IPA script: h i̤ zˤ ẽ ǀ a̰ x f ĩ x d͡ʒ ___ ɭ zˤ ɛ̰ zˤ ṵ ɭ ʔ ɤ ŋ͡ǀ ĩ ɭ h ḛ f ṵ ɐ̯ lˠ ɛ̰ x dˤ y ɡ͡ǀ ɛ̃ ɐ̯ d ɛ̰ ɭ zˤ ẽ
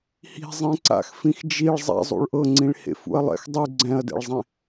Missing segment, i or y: i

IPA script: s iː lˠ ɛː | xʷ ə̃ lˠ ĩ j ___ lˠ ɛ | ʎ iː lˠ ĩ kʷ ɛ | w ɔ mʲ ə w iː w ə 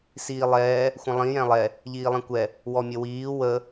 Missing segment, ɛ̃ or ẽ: ɛ̃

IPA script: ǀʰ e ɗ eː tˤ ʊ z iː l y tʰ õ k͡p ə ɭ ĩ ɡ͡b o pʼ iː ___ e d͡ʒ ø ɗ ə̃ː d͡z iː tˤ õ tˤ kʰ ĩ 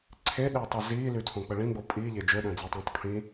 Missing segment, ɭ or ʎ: ʎ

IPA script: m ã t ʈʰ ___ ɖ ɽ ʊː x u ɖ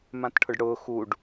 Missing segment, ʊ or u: ʊ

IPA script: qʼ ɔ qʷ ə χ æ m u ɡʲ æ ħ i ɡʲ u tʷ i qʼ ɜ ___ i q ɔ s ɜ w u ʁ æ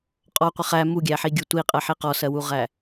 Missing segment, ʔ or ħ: ħ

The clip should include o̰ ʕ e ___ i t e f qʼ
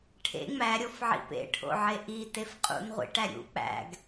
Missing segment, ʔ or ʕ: ʔ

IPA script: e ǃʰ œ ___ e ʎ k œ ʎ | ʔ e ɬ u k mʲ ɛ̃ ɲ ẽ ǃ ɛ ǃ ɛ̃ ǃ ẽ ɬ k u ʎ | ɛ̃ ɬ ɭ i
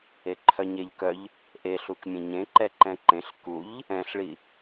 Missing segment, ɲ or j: ɲ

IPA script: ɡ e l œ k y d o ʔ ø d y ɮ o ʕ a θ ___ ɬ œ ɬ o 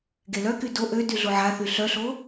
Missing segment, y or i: y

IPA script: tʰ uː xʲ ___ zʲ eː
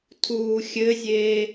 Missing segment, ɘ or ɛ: ɘ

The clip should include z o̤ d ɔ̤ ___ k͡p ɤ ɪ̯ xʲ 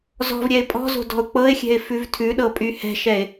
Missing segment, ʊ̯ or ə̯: ʊ̯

